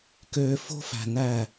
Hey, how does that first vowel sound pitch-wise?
low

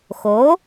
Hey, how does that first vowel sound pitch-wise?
rising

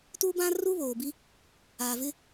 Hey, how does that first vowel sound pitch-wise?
high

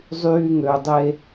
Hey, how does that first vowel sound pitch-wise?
high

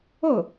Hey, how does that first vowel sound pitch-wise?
falling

